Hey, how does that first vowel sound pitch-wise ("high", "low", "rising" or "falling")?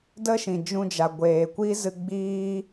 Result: high